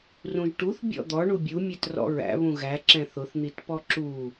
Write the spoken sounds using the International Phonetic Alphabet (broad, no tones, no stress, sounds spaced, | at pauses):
r ũ ʒ ʈ u θ bʲ ɔ̰ d̪ ɔ ɳ u bʲ u mʲ ɛ t r ɔ̰ ɹ æ̰ β ũ ɣ æ ǁ ɛ̃ θ ʊ θ n̪ i t p ɔ ǁ u